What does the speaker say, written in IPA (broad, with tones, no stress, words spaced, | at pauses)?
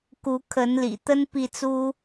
ku˨˦kʰə˨˦nlḭ˨˩t̪ə˦n pi˥˨t͡su˦